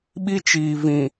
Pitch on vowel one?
high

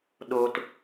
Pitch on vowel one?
low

